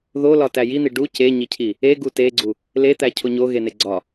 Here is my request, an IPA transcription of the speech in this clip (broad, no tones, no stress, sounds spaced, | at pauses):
ð o l ɒ t æ j i n̪ i ɖ u c e ɲ i cʰ i | e ɡ u t e ɡ͡ǀ u | l e t̪ æ cʰ o ɲ o ɣ e n e ɡ͡ǀ ɒ